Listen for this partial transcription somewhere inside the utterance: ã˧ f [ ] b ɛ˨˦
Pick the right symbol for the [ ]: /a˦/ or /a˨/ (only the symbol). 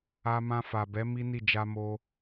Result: a˨